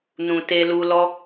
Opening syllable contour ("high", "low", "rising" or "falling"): low